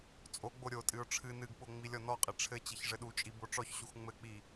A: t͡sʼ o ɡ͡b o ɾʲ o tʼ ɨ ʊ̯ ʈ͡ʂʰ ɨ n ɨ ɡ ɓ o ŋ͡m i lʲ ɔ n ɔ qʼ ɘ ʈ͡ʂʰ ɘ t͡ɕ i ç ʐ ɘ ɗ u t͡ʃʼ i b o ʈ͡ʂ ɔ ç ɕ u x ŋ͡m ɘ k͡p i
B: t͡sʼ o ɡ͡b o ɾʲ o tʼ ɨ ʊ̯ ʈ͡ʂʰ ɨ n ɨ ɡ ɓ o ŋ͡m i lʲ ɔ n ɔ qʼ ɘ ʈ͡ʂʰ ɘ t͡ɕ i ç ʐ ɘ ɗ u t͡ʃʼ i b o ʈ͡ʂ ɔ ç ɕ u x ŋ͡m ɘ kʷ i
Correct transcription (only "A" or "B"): A